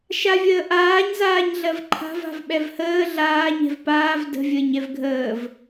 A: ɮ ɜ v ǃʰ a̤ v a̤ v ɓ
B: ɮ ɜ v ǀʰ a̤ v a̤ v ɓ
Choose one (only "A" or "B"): A